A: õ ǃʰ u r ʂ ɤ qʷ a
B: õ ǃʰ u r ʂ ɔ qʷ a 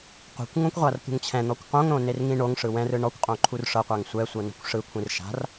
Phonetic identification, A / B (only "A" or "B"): A